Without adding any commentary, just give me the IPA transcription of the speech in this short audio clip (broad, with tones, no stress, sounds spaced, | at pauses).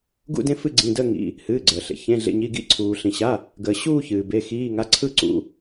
ɡ ṵ˦˨ d ẽ˦˨ f ɨ˦˨ ɡ͡ǀ ĩ˩˧˩ d əː˦˨ ŋ ḭ˩˧˩ | h ɨː˩˧˩ ɡ͡ǀ əː˩ ɬ ḛ˩ ç ẽ˩˧˩ ɮ ḛ˩˧˩ ɲ i˩˧˩ ɡ ḭ˦˨ ǀʰ uː˩ ɬ ĩ˩ ɕ a˩˧˩ | ɡ əː˩ ɕ uː˦˨ ç ɨː˩ b e˩˧˩ x iː˩˧˩ ŋ a˩˧˩ ǀʰ ɯ˦˨ ǀ ṵ˩˧˩